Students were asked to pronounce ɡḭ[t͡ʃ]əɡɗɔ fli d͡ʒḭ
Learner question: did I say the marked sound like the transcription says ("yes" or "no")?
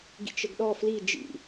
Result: yes